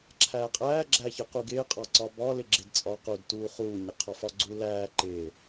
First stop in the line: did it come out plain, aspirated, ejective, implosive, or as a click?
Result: click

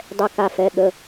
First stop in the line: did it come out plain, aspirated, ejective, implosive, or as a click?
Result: plain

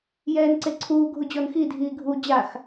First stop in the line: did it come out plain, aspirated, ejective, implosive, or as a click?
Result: click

